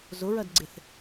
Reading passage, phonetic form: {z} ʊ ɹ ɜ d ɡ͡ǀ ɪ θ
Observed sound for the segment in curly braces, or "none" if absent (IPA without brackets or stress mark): z